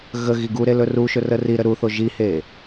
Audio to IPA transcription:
ɣ ə ɣ i ɡ u ɾ e l ɵ r u ʃ ɵ r ə r i ɾ ə ɾ u θ o ʒ i h e

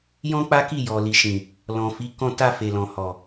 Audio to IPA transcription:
j ɔ̃˦ k͡p a˦ k i˦˨ j ɔ˨ l i˨ ʃ ĩ˨ | l ɔ̃˨ f i˨˦ k ɔ̃˧ t a˧ f e˨ l ɔ̃˨ h ɔ˨

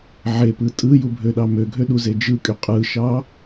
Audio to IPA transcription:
ʕ e p ɯ tʼ ɯ j u bʱ ø ɗ ɑ m ø ɡʱ ø ɗ u z e d͡ʒ ɯ kʼ y qʼ ɯ ʃ ɑ

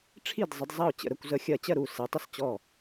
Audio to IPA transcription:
ʈ͡ʂʰ i˥˩ d zˤ ə˨˦ d zˤ ɐ˥˩ ʊ̯ t͡ɕ ə̰˨˦ ɾ ə˨˦ kʷ z ə˨˦ xʲ ɜ˨˦ t͡ɕ ɜ˥˩ ɾ u˥˩ s e˨˦ tˤ ə˥˩ s t͡ɕ ɔ˥˩

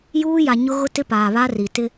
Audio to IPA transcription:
j uː˦ j a˨ ɲ ʊ˦ ɣ ʊ˦ t ɪ˦ p aː˨ β a˦ r i˨ t ɪ˦

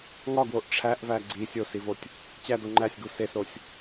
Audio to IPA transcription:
ŋ ɒ ɡ w o ʔ ʈ͡ʂʰ æ ʔ v æ ɡ͡ǀ i sʲ o s i v o tʲ | t͡ɕ æ d o ŋ͡ǃ æ sʲ ɡ u s e s ɾ o sʲ

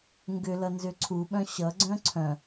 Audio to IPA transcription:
ŋ ɡ ʏ l ʌ n z ʏ ǀʰ u ɓ œ̃ ɕ ʌ ɡ͡ǀ œ̃ ǀʰ œ̃

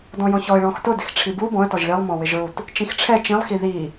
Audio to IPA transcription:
d ɔ̃ j ɔ̃ ç ɔ ɪ̯ ɭ ɔ̃ x t ʊ d ɪ x ʈ͡ʂʰ i b u b ɔ̃ ə̯ t ɔ ʒ ɭ i lˠ m ɔ̃ w ɪ ʒ ɹ u t | t͡ʃ ĩ x ʈ͡ʂʰ ɛ t͡ʃ ĩ lˠ x i ð i

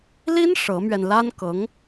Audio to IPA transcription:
l i˥ n ʂ ɤ˧˥ m ɥ ɛ˧ n l a˥ n k ɤ˧˥ ŋ

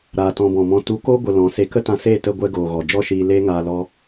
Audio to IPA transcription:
ɾ aː˨ t ɔ̃˧ b ɔ̃˨ m ɔ̃˧ t u˨˦ k oː˦ ɡʷ ə˧ l ɔ̃˨˦ s e˧ k ə˦ t ã˧ s eː˦˨ t ə˧ ɡʷ ɛ˧ ɡ oː˨ ɣ ɔ˨ d͡ʒ ɔ˦ ʃ iː˧ l eː˦ ŋ aː˧ l ɔ˦

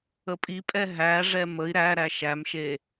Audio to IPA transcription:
ə pʼ i pʼ ɛ ɦ æ ʐ ɛ m ə i̯ ɾ æ ɾ æ ʃ æ m ʃ e

